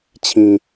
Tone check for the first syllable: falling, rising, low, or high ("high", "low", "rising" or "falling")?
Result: low